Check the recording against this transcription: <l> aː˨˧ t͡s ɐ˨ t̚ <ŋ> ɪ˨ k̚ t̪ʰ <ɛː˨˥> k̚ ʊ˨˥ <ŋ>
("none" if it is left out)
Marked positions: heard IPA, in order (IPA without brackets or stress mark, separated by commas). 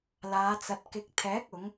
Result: l, k, ɛː˨˥, ŋ